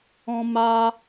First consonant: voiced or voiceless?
voiced